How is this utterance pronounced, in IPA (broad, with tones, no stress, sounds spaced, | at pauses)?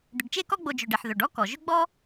d̪ ʏ˨ ɖ t͡ʃ e˥ k ɔ˦ ɡ͡b o˨ d͡ʒ ɵ˩ ɖ e˩ ħ ð ɵ˩ ɖ ɔ˥ k ɔ˩ ʒ ʏ˦ ɡ͡b ɔ˥